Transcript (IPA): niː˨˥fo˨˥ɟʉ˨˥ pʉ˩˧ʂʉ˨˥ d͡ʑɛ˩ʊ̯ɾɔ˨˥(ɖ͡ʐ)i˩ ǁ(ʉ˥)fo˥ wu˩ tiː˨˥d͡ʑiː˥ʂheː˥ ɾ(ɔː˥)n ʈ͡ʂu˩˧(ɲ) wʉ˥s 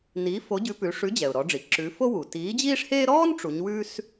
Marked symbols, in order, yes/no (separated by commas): yes, no, yes, yes